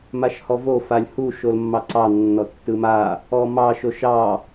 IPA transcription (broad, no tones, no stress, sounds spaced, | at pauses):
m a ʃ h ɔ v o f a lʲ h u ʃ o l mː ɑ ǀ ɑ nː ɔ tː ɯ m a | ɔ m ɑ ʃ o ʃ ɑ